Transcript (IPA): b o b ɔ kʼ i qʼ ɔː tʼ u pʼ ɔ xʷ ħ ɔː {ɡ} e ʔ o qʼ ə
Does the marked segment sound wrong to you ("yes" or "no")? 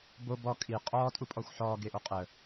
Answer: no